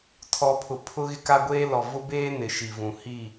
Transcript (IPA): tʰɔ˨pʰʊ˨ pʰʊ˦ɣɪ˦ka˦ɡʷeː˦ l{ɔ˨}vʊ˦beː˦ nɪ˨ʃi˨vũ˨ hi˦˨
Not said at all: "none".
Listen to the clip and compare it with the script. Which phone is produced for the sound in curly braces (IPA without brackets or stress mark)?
ɔ˨